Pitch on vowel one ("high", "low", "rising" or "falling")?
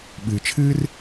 low